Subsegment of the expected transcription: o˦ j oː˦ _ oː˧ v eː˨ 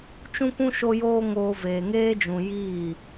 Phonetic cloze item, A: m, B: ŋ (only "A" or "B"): B